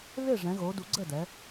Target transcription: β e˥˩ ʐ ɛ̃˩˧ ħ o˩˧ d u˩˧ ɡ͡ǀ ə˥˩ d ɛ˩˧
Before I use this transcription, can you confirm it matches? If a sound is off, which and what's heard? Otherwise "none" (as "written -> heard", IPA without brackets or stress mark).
ħ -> ɣ